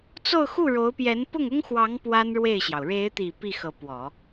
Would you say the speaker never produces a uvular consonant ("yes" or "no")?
yes